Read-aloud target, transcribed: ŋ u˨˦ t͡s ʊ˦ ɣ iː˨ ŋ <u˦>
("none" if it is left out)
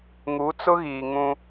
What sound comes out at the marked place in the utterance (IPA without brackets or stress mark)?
ũ˦